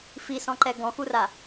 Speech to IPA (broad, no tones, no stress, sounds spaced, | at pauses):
f i s ɔ̃ ǃ ɛ ɡ ɔ̃ x u r a